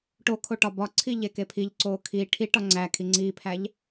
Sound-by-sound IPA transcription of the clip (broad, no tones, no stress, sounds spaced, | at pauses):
ʈ o kʰ o ʈ ɒ b ɒ ǀʰ i ʎ e k e pʰ i ʎ ǀ oː kʰ i ʈʰ i ʈ ɒ ŋ͡ǀ æ kʰ i ŋ͡ǀ iː pʰ æ ʎ